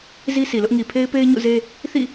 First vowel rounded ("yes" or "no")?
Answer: no